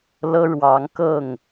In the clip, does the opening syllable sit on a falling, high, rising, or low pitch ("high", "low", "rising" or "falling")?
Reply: high